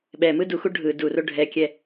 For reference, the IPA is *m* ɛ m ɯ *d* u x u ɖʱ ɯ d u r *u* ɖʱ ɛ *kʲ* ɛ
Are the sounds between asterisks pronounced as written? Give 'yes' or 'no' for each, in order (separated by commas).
no, yes, no, yes